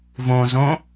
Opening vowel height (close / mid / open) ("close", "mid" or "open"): mid